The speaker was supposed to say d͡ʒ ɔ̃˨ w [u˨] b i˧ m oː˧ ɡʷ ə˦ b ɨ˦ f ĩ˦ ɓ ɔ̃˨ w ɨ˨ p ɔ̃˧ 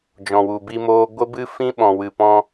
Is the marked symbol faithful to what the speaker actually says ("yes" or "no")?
yes